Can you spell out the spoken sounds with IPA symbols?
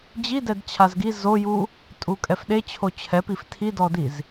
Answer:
d͡ʑ i d ɛ d t͡ɕʰ a z ɡ i z o j u | tʼ u kʼ ɛ f ɗ e t͡ɕʰ o t͡ɕʰ ɛ p i f tʰ i d ɔ d i z

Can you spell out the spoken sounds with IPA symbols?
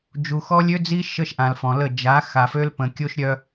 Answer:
d͡ʒ u˨ x ɔ˦ lʲ ø˦ d͡z i˦ ʃ ə˦ ʃ ʔ ã˨ l f ɔ̃˨ l ə˦˨ d͡ʒ a˨˦ x a˨ f ø˦ l p ə̃˨ kʲ o˦ ʃ ɾʲ œ˦

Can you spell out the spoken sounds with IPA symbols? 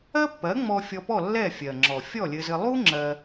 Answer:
ɜ˥ pː ɜ˩˥ ŋ͡m ɔ˧ fʲ ɔ˧ p ɔ˥˩ lː ɛ˥˩ fʲ ɜ˩ ŋ͡ǁ ɔ˩ fʲ ɔ˥˩ lʲ ɘ˧ z ɘ˧ lˠ u˥ ŋ͡ǁ ɜ˧

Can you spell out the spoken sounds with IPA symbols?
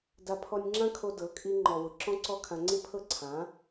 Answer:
d a˧ pʰ ɔ˧ nʲ ŋ͡ǁ ã˦ kʰ o˧ d ɤ˨˦ kʼ i˧ ŋ͡ǃ ɔ˨ w ʊ˨ ǁ ɔ̃˦ ǀ ɔ˦ kʰ ã˧ ŋ͡ǀ i˦ pʰ ɤ˦˨ ǀʰ ã˨˦

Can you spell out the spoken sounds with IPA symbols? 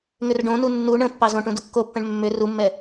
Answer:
ŋ ʏ r ɖ õ n u nː u ɳ ə̃ pː ɑ z õ ʈ ũ d o kː o pː ɛ̃ ɳ mː ʏ r u mː ɛ

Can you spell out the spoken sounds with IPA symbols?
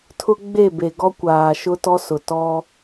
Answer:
tʰ ʊ˦ ɡ͡b e˦˨ b e˨ ɡ ɔ˦ kʷ aː˨ ʃ ʊ˦ t ɔ˦ s ʊ˨ t ɔ˦

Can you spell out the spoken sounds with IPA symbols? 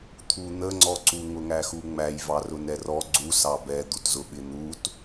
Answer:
t̪ʰ u n̪ ə ŋ͡ǀ ɔ ǀ u ŋ ʊ ŋ æ x u ŋ͡m æ j v ɑ r ʊ n ɛ r ɔ ɡ͡ǀ u s ɑ b ɛ d̪ u t z ʊ ɓ ɪ n̪ u t

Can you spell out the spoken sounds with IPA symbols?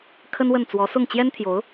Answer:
kʰ ə˥ n w ə˥˩ n t͡s w ɔ˧˥ s ʊ˥˩ ŋ t͡ɕ j ɛ˥ n t̪ʰ j o˧˥ ʊ̯

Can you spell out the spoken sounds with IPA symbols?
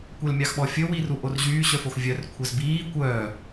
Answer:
kʷ ɛ l mʲ ɑ x ɓ ɔ fʲ ɵ w i r u ʔ o r ʑ yː ɕ œ f o x vʲ œ r kʷʰ ɛ z b iː kʷ œː

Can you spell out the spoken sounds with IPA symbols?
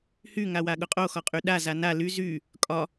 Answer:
h y ŋ a w a ɠ ʊ qʼ o x ɒ qʼ y ɗ a z a n a l y z y | kʼ ɒ

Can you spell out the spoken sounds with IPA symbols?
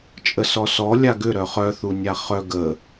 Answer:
t͡ʃʼ ə s ɔ s ɔ lʲ a ɡ ʏ ɾ œ χ œ θ u nʲ a χ œ ɡ ə

